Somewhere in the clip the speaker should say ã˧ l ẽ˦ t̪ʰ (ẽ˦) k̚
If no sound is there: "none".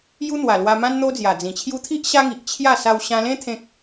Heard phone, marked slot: ẽ˦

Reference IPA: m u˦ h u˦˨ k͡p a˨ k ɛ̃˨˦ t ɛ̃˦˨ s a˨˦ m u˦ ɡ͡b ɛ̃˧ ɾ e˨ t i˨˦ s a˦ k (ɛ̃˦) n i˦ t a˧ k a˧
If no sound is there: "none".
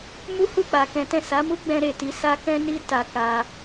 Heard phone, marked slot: ɛ̃˦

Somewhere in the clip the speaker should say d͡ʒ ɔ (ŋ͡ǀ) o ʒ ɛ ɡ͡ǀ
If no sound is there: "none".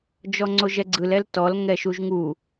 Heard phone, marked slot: ŋ͡ǀ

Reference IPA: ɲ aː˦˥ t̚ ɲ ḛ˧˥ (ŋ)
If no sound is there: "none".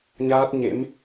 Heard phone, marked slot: m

